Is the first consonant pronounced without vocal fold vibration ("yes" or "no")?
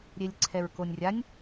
no